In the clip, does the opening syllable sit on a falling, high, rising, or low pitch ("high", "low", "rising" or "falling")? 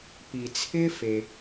low